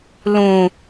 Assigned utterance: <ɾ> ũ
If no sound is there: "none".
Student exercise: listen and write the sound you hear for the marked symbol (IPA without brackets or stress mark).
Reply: l